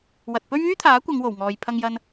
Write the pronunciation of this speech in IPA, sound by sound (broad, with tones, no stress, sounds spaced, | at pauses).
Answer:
w ɐ˨ t̚ p ɵ˥ ɥ yː˥ t̪ʰ aː˨˥ kʷ ɐ˨˧ ŋ w o˨˩ w ŋ ɔː˨ j pʰ ɐ˧ ŋ j ɐ˧ n